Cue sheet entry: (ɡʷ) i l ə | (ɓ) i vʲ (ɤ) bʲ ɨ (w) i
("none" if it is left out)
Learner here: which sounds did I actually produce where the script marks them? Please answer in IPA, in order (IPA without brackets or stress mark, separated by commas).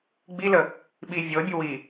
ɡ͡b, ɓ, ɤ, w